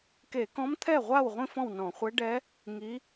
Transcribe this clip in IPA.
k e˧˩˧ k ɔ̃˧˥ m t̪ʰ ɛ˥˩ ʁʷ a˥˩ w ʁʷ ĩ˥˧ f ɔ̃˥˩ w n ɔ̃˧˩˧ χʷ ɛ˧˥ ɖ ɛ˧˥ | ŋ i˧˥

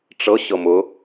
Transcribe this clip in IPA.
ʈ͡ʂ ɤ ɕ ɤ m ʊ

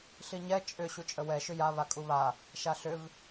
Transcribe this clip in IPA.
ɬ i ɲ ɛ t͡ʃʼ ʏ ɕ u t͡ʃʼ ə w ɛ ʃ ʏ j a β a kʼ u β a | ʃ a ɬ ʏ v

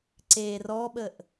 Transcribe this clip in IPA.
ǀ e r ɔ ɓ ə ʔ

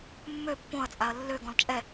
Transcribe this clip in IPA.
mː ø pː õ ɐ̯ t͡sʼ a ɐ̯ lː ø ɡ ɔ̃ l t͡ʃʼ ɛ

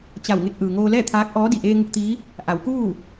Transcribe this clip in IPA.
t͡ɕ a˧˩ w ŋ e˧ k̚ ʔ ɯː˩ ŋ oː˧ l ɛː˥˨ t̪ʰ aː˧˥ k̚ ʔ ɔː˧˥ d i˩ ʔ eː˧ ŋ u˧ k̚ t̪ iː˧˥ | ʔ a˩˧ w k uː˥˨

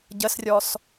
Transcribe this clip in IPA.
ɟ ə s rʲ ɔ s

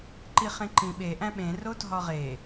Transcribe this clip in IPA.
ǃ i χ ẽ ǃ ĩ ɓ e ʔ æ̃ ɓ ẽ r o dʱ ɒ ʁ e

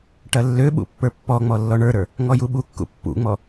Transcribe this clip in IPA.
ʈ ɐ lː ø ɓ ṵ pː ə˞ pː ɔ ŋ͡m ɔ lː ɔ ɳ ə˞ ɾ ə˞ | ŋ ɔ j u ɓ u kː ṵ pː ṵ ŋ͡m ɔ

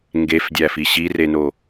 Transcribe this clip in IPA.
ŋ ɡ e f dʲ æ f i ɕ i r e n o

